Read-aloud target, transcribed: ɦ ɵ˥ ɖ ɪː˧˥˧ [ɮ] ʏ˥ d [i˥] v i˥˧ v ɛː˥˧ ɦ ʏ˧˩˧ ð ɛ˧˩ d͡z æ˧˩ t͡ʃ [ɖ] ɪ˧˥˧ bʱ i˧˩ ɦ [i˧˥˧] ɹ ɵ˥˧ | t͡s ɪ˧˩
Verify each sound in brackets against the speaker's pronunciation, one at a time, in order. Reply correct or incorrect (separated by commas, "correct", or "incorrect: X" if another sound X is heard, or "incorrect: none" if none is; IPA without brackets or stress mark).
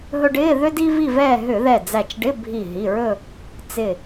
incorrect: ð, correct, correct, incorrect: i˩˧˩